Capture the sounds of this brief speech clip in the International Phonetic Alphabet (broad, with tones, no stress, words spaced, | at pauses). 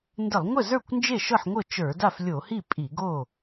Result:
ndə˧˩˧lˠŋʷə˥˩zə˞˥˩kʷ nd͡ʒe˥˩ʃɤ˥˩ħŋʷɤ˥˩ t͡ʃə˞˧˩˧da˥˩flʲo˧˩˧hi˥˩ pʼi˧˩˧ɡo˥˩